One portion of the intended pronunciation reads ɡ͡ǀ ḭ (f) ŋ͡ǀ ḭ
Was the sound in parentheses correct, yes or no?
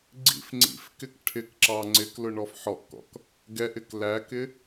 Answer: yes